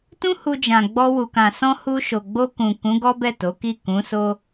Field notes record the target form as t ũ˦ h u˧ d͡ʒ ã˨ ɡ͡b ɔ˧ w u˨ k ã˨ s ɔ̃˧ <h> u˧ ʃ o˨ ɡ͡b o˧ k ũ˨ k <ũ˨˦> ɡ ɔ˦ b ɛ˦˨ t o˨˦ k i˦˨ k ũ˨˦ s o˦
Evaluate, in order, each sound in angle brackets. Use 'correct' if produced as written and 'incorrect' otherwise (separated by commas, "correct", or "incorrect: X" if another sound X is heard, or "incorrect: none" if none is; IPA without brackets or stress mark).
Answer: correct, correct